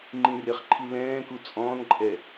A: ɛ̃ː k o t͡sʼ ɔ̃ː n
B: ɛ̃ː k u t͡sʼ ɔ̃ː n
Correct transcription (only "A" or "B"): B